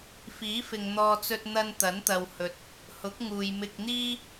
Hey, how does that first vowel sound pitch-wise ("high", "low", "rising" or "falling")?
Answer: rising